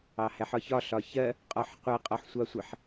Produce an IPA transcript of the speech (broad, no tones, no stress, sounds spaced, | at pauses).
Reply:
ɑ h æ ħ ɒ ç ɒ ɬ ɒ ç ɜ | qʼ ɒ ħ qʷ ɛ qʼ ɒ ħ sʷ ɑ sʷ ɪ ħ